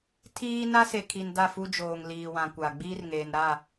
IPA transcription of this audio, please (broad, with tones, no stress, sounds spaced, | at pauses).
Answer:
tʰ iː˦ n a˦ s e˨ kʰ i˨ n d a˦˨ f u˦ d͡ʒ oː˨ ŋ l iː˨ w ã˨ kʷ a˨ ɡ͡b iː˦ r ŋ eː˨ n ɾ a˦˨